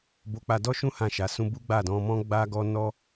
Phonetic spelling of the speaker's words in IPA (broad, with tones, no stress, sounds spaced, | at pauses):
b o˧ k͡p a˧ d ɔ˦ ʃ ũ˦ h ã˦˨ ʃ a˨˦ s ũ˦ b u˦ ɡ͡b a˦˨ d ɔ̃˧ m ɔ̃˦ ɡ͡b a˦ ɡ ɔ˦ n ɔ˦